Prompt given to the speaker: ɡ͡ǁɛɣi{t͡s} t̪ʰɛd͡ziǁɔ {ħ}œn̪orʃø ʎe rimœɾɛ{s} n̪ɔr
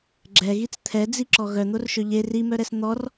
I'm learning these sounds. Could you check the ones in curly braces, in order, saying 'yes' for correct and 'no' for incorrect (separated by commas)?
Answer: yes, no, yes